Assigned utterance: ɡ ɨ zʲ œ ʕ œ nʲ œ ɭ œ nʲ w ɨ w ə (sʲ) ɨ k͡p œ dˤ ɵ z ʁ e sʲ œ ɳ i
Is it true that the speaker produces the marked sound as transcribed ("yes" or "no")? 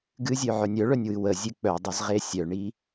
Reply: no